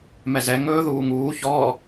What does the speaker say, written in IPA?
m ɛ z ɛ ŋ ɵː ð uː ŋ uː ç ɔː

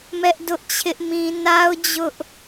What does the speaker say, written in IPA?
m ɛ˦ ʔ d ʊ˦ ʔ t͡ɕʰ ɪ˦ ʔ m ĩ˦ n a˦ ʊ̯ d͡ʑ ʊ˦ ʔ

